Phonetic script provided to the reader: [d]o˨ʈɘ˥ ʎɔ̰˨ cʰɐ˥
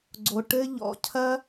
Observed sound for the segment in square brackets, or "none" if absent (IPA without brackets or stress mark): ɡ͡ǀ